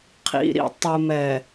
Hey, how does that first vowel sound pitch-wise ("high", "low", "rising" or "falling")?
low